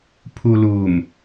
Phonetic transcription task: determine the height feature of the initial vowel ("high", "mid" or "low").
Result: high